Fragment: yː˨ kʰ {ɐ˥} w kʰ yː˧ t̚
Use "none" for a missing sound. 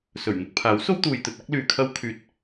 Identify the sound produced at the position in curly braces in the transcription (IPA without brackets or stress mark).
ɐ˥